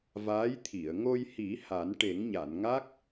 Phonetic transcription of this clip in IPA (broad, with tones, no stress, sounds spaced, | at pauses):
v aː˧˥ j t̪ʰ i˨˩˨ ə̯ ŋ o˧ j h i˨˩˦ h a˨˩˦ n ʈ e˨˩˦ ŋ ɲ a˨˩˨ n ŋ a˦˥ k̚